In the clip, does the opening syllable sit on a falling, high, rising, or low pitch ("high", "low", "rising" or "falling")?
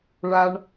low